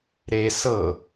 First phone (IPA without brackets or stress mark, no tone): ɾ